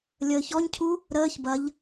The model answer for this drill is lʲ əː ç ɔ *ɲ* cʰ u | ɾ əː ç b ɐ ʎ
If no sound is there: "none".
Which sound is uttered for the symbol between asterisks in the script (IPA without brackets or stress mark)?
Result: ɲ